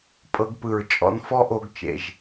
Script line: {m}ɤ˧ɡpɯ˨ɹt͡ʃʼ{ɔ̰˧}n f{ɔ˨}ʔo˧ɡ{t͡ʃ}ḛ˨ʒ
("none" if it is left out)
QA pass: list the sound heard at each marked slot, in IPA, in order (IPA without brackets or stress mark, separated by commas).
pʼ, ɔ̰˧, ɔ˦, t͡ʃ